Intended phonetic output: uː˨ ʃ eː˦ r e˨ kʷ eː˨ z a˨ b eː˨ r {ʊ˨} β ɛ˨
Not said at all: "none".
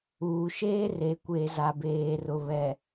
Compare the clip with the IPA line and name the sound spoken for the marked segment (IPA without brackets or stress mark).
ʊ˨